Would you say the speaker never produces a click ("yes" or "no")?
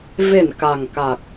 yes